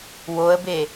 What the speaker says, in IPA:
w o ə̯ b e

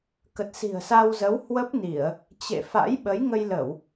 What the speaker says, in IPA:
k ə˨˩ t̚ s i̤˨˩ ə̯ s a˧ w z ə˨˦ w h w ə˦˥ p̚ n i˧˩˨ ə̯ | t͡ɕ ḛ˧˨ f a̰˧˥ j ɓ ə˨˦ j ŋ ə˧ j l ə˧˩˨ w

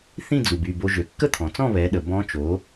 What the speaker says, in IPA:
θ ĩ˥˨ d͡z u˩ b y˧˩ b o˧ ʒ ø˩ kː ə˥˨ t̪ʰ ɔ̃˩ t͡s ɔ̃˥˨ β ɛ˩˥ ɗ ə˩ b ɔ̃˧˥ t͡ʃ o˩˥

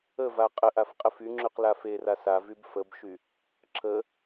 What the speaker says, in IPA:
ə v a qʼ ə ʔ a f qʼ ə f y ŋ͡ǁ y q l a f e r a s a v y b f ə b ʃ y | ǁ ə

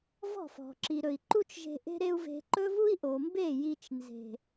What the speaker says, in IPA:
v ɔ̤˦˨ f ɔ̤˨ ǁ i˨ ɾ ɵ˨ i̯ ǃ u˦ t͡ʃ ʒ e̤˧ ʔ e̤˦ ɾ e˦ u̯ v e̤˧ ǃ ɵ˦ v u˦ i̯ ʔ o˨ m b e˦˨ j i˧ t͡ʃ n z e̤˨

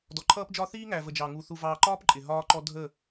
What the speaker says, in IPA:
d ɔ˨ ǃʰ ʌː˦ p d͡ʒ ɒ˦ θ iː˦ ŋ æ˨ v ə˨ d͡ʒ ɑ˨ ŋ u˨ θ u˨ v ɑː˨ ǃ ɒː˦ p ǃʼ ɪ˨ ɦ ɒː˦ ǃ ɔ˦ dʱ ə˦˨

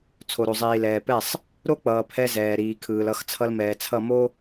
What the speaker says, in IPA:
t͡sʰ o˨ ɾ o˨ zˤ iː˨ l ɛː˨ p ɛ˦˨ sˤ | ɾ o˦ k͡p ʌː˨ pʰ ɛ˦ z ɛː˨ ɾ iː˨ kʰ ɯː˨ l ʌ˦˨ x t͡sʰ ʌ˦ l m ɛː˨ t͡sʰ ʌ˦˨ m o˦

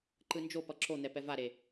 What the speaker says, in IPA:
ǃ ɯ n d͡ʒ o p ʌ ǁ o n̪ ɛ p ɛ v a ɾ e

